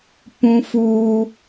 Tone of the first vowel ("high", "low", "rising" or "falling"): high